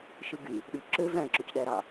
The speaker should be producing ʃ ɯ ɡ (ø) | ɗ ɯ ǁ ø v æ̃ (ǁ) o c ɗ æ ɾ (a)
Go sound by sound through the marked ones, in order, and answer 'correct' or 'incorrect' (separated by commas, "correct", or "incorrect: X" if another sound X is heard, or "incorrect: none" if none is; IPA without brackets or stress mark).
incorrect: y, correct, incorrect: ɑ